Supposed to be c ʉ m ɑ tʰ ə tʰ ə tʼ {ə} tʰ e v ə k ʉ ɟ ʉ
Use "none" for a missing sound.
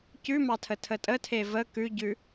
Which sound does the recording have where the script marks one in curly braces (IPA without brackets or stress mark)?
ə